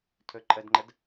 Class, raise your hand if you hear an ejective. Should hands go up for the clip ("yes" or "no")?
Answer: yes